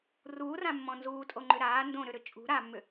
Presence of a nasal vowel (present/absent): present